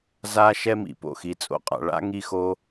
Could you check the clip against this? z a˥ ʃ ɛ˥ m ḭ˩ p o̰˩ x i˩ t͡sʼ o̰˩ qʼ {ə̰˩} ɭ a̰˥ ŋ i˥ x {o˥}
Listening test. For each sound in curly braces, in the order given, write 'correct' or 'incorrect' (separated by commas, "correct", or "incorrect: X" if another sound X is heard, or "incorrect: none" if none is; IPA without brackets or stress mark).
incorrect: a̰˩, correct